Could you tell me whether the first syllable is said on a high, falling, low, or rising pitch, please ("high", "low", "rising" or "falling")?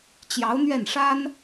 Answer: rising